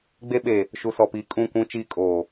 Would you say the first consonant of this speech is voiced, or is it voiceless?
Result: voiced